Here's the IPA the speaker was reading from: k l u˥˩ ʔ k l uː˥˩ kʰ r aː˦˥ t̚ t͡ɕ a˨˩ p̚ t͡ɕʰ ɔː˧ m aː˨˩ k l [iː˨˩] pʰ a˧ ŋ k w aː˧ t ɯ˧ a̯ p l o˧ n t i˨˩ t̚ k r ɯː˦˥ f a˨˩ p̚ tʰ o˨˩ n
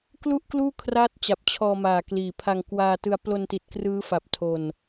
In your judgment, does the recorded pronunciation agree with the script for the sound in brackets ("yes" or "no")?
yes